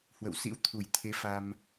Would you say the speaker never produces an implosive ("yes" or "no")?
yes